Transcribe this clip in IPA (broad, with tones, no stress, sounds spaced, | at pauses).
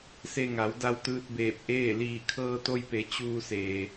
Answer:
s e˧ ŋ a˩˧ w d a˧ w t̪ ɯː˧ t̚ b eː˧˩ p̚ ʔ eː˥˨ l iː˧˩ kʰ ɤː˧ t̪ o˧ j p e˩˧ t͡ɕ uː˧ s eː˩